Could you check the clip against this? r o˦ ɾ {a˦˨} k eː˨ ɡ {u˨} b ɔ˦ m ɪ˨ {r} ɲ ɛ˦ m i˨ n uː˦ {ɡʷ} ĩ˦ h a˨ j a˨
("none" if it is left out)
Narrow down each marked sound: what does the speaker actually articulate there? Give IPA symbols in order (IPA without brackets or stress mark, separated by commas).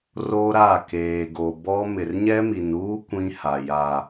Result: a˦˨, o˨, r, kʷ